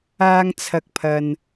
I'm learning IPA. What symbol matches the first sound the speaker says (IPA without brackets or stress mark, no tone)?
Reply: aː